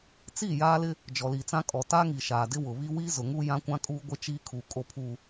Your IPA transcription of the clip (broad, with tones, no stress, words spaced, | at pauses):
t͡si˦˨ jaː˦lɪ˦ | d͡ʒɔ˨li˨t͡sã˦ kʼɔ˨taː˦ŋi˨ ʃaː˨dɪ˦wʊ˨βi˦ wiː˦zʊ˨ŋuː˦ jã˦kʷã˦kʼuː˦ ɡʷɪ˦ t͡ʃiː˦ kʰuː˨ kʼo˨pʰuː˨